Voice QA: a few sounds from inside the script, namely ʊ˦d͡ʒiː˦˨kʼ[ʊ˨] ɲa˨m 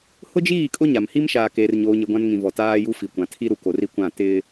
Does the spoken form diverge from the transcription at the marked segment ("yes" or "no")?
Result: yes